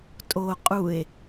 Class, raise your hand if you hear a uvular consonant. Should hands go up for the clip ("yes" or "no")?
yes